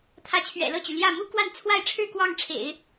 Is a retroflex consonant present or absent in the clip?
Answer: present